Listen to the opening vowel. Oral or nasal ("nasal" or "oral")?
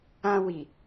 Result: nasal